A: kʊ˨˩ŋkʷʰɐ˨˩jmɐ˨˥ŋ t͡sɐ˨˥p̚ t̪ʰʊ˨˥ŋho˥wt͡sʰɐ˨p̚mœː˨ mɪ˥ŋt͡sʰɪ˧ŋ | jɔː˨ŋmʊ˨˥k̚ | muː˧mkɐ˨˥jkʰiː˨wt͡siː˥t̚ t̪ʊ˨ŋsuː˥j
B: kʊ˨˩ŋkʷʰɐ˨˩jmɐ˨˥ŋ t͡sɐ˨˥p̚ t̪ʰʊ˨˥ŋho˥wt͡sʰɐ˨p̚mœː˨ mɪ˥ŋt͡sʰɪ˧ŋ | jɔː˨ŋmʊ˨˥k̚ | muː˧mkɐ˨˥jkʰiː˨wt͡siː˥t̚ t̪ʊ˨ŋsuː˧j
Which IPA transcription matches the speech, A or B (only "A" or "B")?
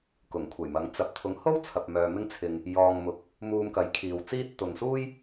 A